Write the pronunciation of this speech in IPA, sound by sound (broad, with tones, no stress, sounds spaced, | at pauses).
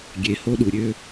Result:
ɡʲ e˧ h o˥ ɗ u˧ ɾʲ ø˥